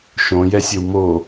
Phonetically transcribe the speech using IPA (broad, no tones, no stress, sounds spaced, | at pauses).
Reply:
ʃ õ j ɛ sʲ ɘ w m o